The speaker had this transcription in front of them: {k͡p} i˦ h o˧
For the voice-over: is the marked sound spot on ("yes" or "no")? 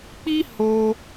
yes